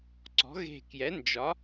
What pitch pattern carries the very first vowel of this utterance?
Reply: rising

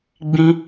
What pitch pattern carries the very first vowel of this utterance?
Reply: high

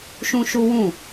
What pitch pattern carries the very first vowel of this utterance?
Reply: high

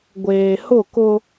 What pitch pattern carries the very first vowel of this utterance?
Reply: low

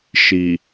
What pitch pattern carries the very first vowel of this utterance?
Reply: low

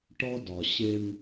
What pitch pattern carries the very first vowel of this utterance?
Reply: high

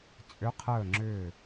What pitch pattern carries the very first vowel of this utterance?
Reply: rising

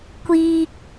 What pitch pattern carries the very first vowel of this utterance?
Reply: high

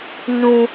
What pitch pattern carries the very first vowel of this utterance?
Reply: high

